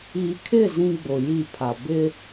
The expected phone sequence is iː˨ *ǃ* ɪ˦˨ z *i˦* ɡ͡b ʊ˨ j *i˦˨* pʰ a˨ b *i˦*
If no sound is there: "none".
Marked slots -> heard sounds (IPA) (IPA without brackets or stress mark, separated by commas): kʰ, ĩ˦, i˦˨, ɪ˦